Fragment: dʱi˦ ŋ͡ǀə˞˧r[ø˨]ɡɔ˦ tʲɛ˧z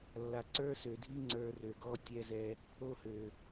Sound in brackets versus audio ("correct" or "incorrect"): correct